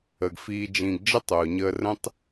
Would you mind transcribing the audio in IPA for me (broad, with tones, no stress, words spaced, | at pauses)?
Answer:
ə˨ɡfiː˧d͡ʒĩ˧ɡ d͡ʒə˦tˤʊː˨ɲəː˧rə̃˦tˤ